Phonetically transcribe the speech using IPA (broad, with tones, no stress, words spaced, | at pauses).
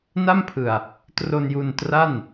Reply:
na˥˩mpʰɯ˨˩a̯ | tro˧nju˧ntra˥˩n